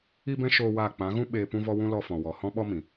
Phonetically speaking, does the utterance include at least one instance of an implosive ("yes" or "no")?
yes